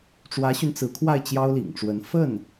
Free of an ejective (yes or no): yes